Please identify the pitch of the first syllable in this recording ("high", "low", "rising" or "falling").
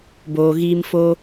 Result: low